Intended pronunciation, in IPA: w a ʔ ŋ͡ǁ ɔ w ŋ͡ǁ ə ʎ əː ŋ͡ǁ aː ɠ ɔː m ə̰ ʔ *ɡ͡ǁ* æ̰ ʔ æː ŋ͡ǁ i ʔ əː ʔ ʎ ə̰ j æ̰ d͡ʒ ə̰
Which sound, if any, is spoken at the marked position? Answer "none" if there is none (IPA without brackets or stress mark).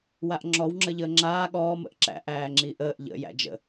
ǁ